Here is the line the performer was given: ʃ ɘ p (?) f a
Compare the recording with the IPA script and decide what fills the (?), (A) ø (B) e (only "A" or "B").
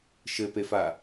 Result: B